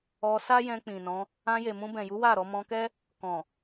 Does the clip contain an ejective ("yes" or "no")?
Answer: no